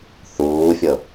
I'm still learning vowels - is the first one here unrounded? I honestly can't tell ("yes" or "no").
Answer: no